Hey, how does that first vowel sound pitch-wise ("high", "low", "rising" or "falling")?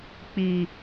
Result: low